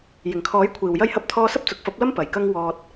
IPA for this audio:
j ɪ˨˩ ŋ kʰ ɔː˨˥ j kʷʰ iː˨˩ w j ɐ˥ j h ɐ˥ p̚ t̪ʰ ɔː˥ s ɐ˥ p̚ t͡s ʊ˨ k̚ f ɐ˨˥ p̚ l ɐ˥ m p ɐ˨˩ j k ɐ˥ ŋ w ɔː˨ t̚

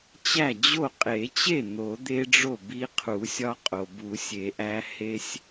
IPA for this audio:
t͡ɕ æ˥˩ d͡ʑ o˥˩ qʼ e˨˩˦ t͡ɕ e˥˩ n̪ o˨˩˦ d̪ e˦ ɖ͡ʐ o˥˩ b i˦ qʰ u˨˩˦ sʲ ɒ˦ qʼ o˩ b u˨˩˦ sʲ e˨˩˦ ʔ æ˦ h e˦ sʲ

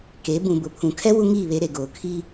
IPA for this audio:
k e˨˦ b ũ˨ b ʊ˨ pʰ ũ˨ kʰ ɛ˦ w u˦ ŋ iː˦˨ β e˨˦ ɾ e˨ ɡ oː˨ kʰ i˦

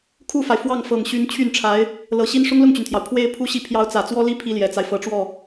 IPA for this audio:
kʰ u˥˩ f a˩ ɪ̯ f w ɑ˥˩ ŋ f ɤ˨˩ ŋ ɕ y˧˥ n t͡ɕʰ y˥˩ n ʈ͡ʂʰ a˧˥ ɪ̯ | l ɤ˨˩ ɕ i˥ n ʂ ʊ˥ ŋ l ʊ˥˩ ŋ t͡ɕ y˩ n t̪ʰ j ɑ˩ ʊ̯ pʰ w e˥ ɪ̯ pʰ u˥ ɕ i˥ pʰ j ɑ˧˥ ʊ̯ t͡s ä˨˩ t͡s w ɔ˥ l i˥ pʰ i˥ l j ɛ˨˩ t͡s a˦ ɪ̯ f ɤ˧˥ ʈ͡ʂ w ɔ˥˩

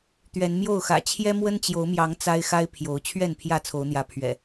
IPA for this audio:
t̪ ɥ ɛ˨˦ n m j o˥˨ ʊ̯ x ä̰˨˩ t͡ɕʰ j ɛ˦ m w ə˦ n t͡ɕ j o˨˦ ʊ̯ m j ɑ˨˦ ŋ t͡s a˦ ɪ̯ x a˦ ɪ̯ pʰ j o˨˦ ʊ̯ t͡ɕʰ ɥ ɛ˥˨ n pʰ j ä˥˨ t͡sʰ o˨˦ ʊ̯ n̪ j ä˨˦ pʰ ɥ ɛ̰˨˩

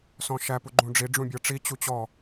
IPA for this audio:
s ɔ̃ ʃ æ p u ɡ͡ǃ ũ ɖ͡ʐ i ɖ͡ʐ ũ bʲ ɤ ʈ͡ʂ i t͡ɕ u t͡ɕ ɔ

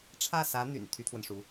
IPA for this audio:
ʈ͡ʂʰ ä˥˩ s ä˧˥ n̪ y̰˨˩ n t̪ʰ y˥ t̪ʰ w ə˨ n ʂ u˧˥

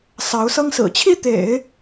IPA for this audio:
s ɑ˧˥ ʊ̯ s ɤ˥ ŋ s ɹ̩˨˩ t͡ɕʰ i˥˩ t̪ ḛ˨˩˦ ɪ̯

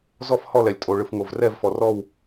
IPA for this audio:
z ɔ˥˨ f h ɔ˥˨ l ɛ˩ lʲ tʼ o˩ ɭ ɯ˩ f ŋ o˩ v r ɛ˥˨ v f ɔ˩ r ɔ˥˨ w

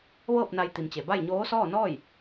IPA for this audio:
ʋ ɤː˥˨ p̚ n a˧ j t̪ i˩˧ m t͡ɕ e˩ b a˥˨ j ɲ oː˧˥ s ɔː˥˨ n ɔː˥˨ j

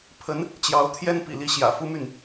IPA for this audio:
pʰ ə˧˥ n | t͡ɕ j ɑ˧˥ ʊ̯ t̪ʰ j ɛ˥ n p ḭ˨˩ l i˥˩ ɕ j ä̰˨˩ f u˥ m y˥˩ n

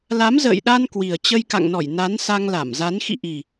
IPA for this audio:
l a˨˦ m z ə̰ː˧˨ j ɗ a˧ n k w i˨˩ ə̯ t͡ɕ ə˧ j k a̰˧˨ ŋ n ɔ˧˩ j n a˨˦ n s a˧ ŋ l a˧˩ m z a˨˦ n x ḭ˧˨ ʔ i˨˩

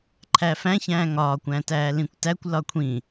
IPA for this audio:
ǃʰ æ f æ̃ ç æ̃ː ŋ ɒː kʷ æ̃ t æː l ĩ kʷ t æ kʷ l ɒ kʷʰ ĩ

